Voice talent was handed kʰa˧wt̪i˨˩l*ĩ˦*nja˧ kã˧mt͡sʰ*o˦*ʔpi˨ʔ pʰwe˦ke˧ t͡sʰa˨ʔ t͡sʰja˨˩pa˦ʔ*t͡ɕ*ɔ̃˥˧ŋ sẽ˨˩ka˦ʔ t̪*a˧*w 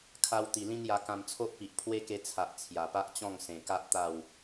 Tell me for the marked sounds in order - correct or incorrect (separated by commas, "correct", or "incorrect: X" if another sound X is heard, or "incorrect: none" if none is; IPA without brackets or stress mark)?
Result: correct, correct, correct, incorrect: a˥˧